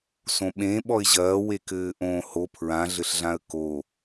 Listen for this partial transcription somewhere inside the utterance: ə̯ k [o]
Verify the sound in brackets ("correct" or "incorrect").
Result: correct